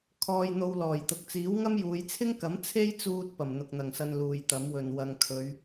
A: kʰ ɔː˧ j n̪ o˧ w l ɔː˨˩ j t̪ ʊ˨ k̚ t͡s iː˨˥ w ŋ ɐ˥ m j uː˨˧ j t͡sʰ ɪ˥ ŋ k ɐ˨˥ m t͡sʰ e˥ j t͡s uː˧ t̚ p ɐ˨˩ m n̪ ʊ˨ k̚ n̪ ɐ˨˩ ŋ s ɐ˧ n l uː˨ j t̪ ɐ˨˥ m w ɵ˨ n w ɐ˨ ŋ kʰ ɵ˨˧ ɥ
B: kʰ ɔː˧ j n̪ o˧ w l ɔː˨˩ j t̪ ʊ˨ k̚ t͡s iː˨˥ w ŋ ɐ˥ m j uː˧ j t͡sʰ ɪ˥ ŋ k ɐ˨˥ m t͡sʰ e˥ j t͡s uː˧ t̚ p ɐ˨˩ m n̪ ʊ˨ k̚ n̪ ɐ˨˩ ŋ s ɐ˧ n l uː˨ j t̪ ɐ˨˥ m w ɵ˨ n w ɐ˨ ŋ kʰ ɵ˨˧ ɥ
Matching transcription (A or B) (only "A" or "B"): A